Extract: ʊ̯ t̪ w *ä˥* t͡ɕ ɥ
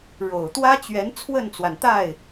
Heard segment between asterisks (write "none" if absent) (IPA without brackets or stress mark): ä˥